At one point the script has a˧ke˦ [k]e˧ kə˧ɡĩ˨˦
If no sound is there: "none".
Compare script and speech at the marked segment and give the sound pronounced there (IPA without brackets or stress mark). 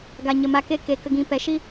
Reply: k